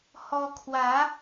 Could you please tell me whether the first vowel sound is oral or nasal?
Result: oral